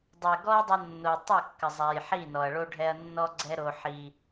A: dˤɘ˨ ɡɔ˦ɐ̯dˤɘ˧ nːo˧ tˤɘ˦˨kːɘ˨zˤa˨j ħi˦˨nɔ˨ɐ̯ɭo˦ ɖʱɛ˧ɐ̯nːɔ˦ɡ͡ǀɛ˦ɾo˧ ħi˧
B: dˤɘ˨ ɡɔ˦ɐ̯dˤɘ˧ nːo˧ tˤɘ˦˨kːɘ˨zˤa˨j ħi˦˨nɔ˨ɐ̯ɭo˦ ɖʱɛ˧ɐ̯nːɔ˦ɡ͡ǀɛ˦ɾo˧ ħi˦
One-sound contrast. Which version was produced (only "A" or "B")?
A